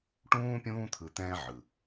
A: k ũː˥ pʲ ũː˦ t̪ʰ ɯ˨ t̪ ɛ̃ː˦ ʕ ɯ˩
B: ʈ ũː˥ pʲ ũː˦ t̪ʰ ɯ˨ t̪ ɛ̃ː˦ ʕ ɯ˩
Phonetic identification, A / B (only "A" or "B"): B